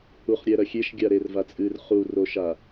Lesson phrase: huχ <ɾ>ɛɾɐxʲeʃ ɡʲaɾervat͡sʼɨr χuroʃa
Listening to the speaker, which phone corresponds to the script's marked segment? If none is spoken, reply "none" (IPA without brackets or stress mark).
ɾʲ